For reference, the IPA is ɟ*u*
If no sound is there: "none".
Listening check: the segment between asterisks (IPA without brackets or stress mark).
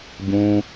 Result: ũ